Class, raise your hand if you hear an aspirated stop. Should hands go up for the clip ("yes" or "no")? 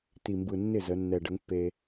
no